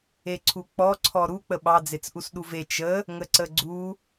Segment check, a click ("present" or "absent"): present